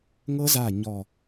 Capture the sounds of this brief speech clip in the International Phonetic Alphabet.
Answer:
ŋ ɤ˦˥ z a˧˩ ɲ ɔ˧˩

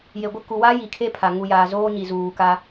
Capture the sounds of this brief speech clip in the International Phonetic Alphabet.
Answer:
j e˨ ɡʷ ɪ˦˨ k u˨ w a˦ j i˨ kʰ e˦ pʰ a˨ ŋ u˨ j aː˨ z oː˦ ɲ i˨ z uː˨ k a˦

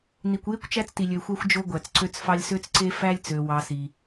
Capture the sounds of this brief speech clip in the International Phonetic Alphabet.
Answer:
n i˨ kʷ j e˥ kʷ t͡ʃ æ˥ t͡s t i˨ lʲ ø˨ xʷ æ˥ xʷ d͡ʒ o˥ ɡʷ æ˨ t͡s ǀ ø˥ t͡s f ɑ˥ lʲ s ø˥ t͡s ǀ e˥ f æ˥ lʲ t͡s ø˨ w ɑ˨ s i˨

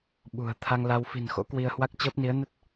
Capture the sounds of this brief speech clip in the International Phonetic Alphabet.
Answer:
ɓ ṳ˨˩ ə̯ t̪ʰ a˧ ŋ l a˧ w f i̤˨˩ n x o̰˧˥ k w i˧ ə̯ h w a˦˥ k̚ t͡ɕ əː˦˥ p̚ n i˨˦ ə̯ n ə˦˥ t̚

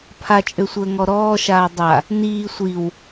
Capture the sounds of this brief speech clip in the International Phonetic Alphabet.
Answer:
pʰ a t͡ʃʼ ø sʷ əː ŋ ɔ ɾ ɔː ʃ aː dˤ a | n iː sʷ i w

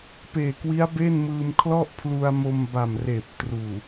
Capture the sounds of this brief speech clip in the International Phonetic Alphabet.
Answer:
p eː˨˩ k w i˦˥ a̯ b e˥˩ n m ɯː˧ m kʰ l ɔ˥˩ ʔ pʰ l u˧ a̯ m o˧ m b a˨˩ m r eː˨˩ p̚ t r uː˨˩

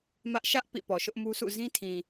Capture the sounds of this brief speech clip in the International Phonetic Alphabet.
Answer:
m ä˦ ʔ ʃ ä˦ ʔ p ḭ˦˨ p ɔ˨ ʃ ʊ˦ ʔ m u˦ sʰ ṵ˦˨ z ĩ˦ tʰ ĩ˨

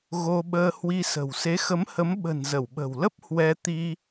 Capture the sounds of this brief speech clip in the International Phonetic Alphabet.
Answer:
ɣ o˧ ɓ əː˧ h w i˧ s ə̤˨˩ w s e˨˦ x ə˨˦ m h ə˨˦ m ɓ ə̤˨˩ n z ə˧˩ w ɓ ə̤˨˩ w l ə˦˥ p̚ h w ɛ˧ t̪ i˧

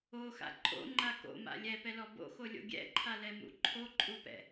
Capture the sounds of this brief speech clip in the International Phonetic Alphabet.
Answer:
o x a̰ ǃʼ o̰ ŋ͡ǃ a k o̰ m a̰ lʲ ɛ p ɛ l ɔ b o̰ x o lʲ o̰ ɡʲ ɛ̰ ǃʰ a l ɛ m ṵ ǃʰ o ǃʼ u p ɛ̰

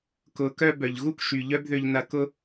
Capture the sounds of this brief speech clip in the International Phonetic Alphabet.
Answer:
k ʊ˨˦ k œ˧ b œ˨ ʎ ɣ u˦ k ʃ y˨ ʎ œ˦ b ð ø˧ ʎ n ɐ˧ k ʊ˧

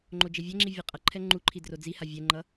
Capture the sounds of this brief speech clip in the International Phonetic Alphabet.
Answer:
ŋ͡ǃ o d͡ʒ e vʲ ɛ ŋ͡ǁ i vʲ ʌ qʼ ʌ ǃʰ ɛ ŋ͡ǃ u ǃʰ i d r o d͡z i h a vʲ ɛ ŋ͡ǃ ʌ

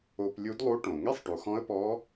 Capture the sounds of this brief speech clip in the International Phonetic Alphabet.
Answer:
o˧ p lʲ u˧˥ d lˠ u˧˥ ʈ õ˩ ŋ ɛ˥ sˤ ʈ u˩ x ɔ̃˧˥ ə̯ p ɔ˧˥

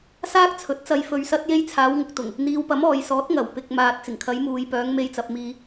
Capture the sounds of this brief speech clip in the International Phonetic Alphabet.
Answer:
s aː˥ k̚ t͡sʰ ɵ˨˥ t̚ t͡s ɐ˧ j f ɵ˨ ɥ s ɐ˧ t̚ j e˧ j t͡sʰ aː˨˧ w ŋ ʊ˨ k̚ t̪ ʊ˨˩ ŋ | n̪ iː˨˧ w p ɐ˨˥ m ɔː˨ j s ɔː˨˥ t̚ ŋ ɐ˨˩ w p ɪ˨ k̚ m aː˨ t̚ t͡s ɪ˨˩ ŋ kʰ ɐ˨˧ j m uː˨ j p œː˨˧ ŋ m e˧ j t͡s ɐ˨ p̚ m iː˨

